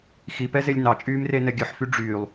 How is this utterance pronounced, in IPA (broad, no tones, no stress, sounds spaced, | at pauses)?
x i p ɛ z e lʲ n ɑ t͡ʃʼ yː m r e n ɛ ɡʲ ɵ ħ f y ɖ͡ʐ yː lˠ